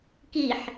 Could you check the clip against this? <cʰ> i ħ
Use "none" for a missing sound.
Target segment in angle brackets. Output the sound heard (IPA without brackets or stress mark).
k